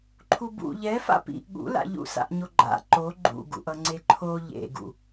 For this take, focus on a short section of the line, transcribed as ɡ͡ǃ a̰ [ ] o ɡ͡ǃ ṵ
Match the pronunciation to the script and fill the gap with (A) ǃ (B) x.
A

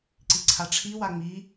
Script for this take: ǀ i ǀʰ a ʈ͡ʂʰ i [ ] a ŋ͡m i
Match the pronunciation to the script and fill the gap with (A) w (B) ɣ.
A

